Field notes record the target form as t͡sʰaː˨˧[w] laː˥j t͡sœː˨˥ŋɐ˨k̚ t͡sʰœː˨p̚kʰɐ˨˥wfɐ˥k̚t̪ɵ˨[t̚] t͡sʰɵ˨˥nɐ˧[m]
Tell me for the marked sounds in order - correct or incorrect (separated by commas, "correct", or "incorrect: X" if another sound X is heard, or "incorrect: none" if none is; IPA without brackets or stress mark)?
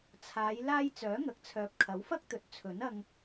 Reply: incorrect: j, correct, incorrect: ŋ